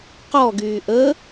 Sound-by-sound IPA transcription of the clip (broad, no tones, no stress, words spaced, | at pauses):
qɔɡyː ʔə